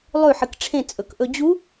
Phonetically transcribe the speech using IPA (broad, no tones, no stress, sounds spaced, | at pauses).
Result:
lˠ ʉ ħ ɨ k ʈ͡ʂʰ ẽ t͡sʼ ɵ k ʔ ɵ d͡ʑ u